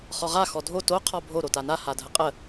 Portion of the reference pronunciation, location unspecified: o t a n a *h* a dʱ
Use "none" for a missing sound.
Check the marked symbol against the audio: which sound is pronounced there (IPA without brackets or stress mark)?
h